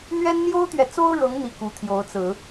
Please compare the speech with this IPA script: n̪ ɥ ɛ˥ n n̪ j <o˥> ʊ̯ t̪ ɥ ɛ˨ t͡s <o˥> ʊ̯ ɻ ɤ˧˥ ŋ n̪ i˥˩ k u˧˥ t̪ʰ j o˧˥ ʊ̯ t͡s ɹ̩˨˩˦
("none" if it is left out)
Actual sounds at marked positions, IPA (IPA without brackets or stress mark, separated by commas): o˥, o˥